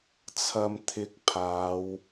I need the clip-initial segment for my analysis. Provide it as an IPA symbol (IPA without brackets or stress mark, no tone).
t͡sʰ